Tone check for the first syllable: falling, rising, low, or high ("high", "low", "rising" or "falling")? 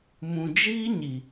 low